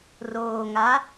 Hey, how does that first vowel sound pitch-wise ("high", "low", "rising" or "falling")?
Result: low